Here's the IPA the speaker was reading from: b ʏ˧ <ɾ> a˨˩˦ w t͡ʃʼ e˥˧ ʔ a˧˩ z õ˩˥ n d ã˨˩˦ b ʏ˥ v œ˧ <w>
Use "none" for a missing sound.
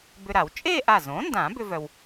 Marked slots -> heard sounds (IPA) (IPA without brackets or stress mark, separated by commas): ɾ, w